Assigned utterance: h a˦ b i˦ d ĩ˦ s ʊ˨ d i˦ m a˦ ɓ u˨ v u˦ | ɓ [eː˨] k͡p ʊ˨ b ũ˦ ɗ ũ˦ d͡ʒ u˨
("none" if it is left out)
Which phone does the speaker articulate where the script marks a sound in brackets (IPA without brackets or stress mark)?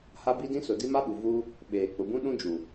eː˨